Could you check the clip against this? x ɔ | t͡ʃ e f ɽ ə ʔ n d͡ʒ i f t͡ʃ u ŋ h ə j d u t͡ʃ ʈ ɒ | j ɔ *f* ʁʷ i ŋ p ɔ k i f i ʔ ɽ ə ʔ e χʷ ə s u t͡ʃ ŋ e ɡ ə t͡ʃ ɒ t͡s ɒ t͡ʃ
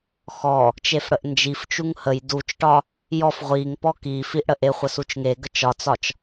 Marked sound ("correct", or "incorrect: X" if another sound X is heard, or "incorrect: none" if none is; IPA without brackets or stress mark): correct